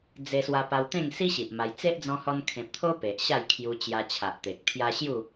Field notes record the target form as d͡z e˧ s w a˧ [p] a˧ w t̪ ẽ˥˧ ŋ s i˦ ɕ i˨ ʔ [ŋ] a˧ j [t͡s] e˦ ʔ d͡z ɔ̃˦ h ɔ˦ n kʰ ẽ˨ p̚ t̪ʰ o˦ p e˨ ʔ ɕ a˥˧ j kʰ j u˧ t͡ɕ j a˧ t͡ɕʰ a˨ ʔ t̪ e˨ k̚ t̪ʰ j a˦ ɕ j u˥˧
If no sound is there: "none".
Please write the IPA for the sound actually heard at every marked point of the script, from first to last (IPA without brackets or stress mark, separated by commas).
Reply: p, m, t͡s